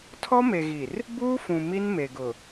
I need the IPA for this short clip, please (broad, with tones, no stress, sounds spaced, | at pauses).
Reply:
tʰ ɔ˦ m e˨ ɣ i˨ r | b uː˦ f ũ˨ m i˦ n m e˨ ɡ ʊ˨